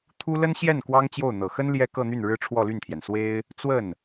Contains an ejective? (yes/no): no